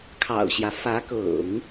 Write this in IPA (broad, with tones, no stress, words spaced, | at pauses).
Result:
kʰɑ̰˨˩ʊ̯ɕjä˦ fä˧˥kɤ̰˨˩˦ŋ